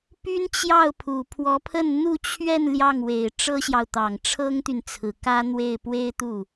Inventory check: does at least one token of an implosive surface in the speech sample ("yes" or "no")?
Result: no